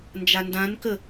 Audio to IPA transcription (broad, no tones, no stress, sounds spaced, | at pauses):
n d͡ʒ a n d ã n k ə